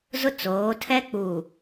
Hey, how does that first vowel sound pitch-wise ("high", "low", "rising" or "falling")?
high